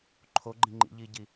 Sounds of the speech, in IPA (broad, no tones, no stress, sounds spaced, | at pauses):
ǃʰ o ɡ͡ǃ ĩ ŋ͡ǃ ḭ ʎ iː ɟ i